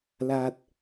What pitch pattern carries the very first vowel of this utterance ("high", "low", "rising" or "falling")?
low